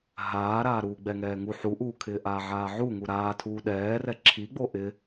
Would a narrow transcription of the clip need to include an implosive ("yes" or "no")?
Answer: yes